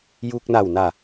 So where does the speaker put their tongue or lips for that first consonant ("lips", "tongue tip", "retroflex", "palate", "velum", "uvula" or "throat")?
palate